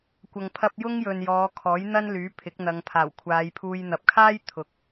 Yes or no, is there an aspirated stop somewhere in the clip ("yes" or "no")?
yes